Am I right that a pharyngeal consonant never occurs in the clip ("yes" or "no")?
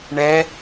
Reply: yes